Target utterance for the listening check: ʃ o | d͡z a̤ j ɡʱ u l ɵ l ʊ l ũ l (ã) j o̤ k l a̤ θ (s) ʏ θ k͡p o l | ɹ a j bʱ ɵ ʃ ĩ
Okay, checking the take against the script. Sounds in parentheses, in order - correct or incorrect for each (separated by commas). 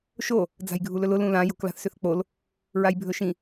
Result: correct, correct